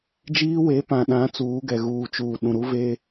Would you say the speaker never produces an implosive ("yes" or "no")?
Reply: no